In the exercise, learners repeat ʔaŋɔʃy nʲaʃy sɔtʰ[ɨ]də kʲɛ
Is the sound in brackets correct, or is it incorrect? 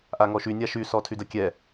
incorrect